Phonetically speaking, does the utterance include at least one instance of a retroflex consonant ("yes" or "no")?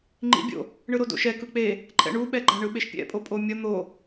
yes